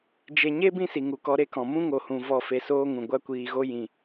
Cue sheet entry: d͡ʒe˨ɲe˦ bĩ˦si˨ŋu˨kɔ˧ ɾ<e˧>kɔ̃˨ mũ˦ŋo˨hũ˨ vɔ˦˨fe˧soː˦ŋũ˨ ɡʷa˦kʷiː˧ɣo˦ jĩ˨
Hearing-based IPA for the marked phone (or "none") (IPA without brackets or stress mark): e˦